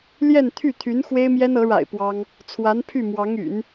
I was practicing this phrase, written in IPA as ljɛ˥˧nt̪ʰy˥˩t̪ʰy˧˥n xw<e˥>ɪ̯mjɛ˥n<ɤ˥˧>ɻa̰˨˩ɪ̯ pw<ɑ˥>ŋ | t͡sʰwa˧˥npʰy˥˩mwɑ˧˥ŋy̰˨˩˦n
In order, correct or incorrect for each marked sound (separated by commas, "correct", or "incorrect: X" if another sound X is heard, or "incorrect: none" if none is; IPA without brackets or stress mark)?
correct, incorrect: ɤ˧˥, correct